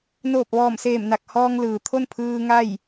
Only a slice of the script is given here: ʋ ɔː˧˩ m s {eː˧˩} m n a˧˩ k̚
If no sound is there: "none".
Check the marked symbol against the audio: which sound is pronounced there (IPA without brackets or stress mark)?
eː˧˩